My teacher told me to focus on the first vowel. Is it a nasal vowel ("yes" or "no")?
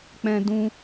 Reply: yes